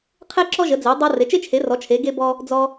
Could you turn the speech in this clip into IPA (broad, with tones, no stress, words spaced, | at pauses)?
qʰe˥ǁɔ˥ʒə˨˥d͡ze˨˥ dˤɤ˥ re˨˥t͡ʃe˥t͡ʃʰe˨˥ rɔ˨˥t͡ʃʰe˨˥ ɡe˥bɔ˥ | d͡zɔ˥